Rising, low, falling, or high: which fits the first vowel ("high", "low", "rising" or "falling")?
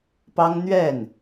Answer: high